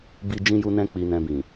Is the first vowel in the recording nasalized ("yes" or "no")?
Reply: no